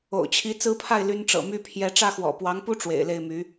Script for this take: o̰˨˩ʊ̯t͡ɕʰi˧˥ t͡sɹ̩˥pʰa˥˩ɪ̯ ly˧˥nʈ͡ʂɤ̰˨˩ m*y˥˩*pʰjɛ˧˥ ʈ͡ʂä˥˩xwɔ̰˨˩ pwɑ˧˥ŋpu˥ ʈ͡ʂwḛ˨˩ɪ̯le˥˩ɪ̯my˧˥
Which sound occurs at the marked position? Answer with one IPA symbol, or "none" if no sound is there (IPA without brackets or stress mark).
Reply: y˥˩